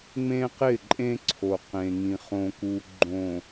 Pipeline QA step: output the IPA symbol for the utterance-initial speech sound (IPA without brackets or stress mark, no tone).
ŋ͡m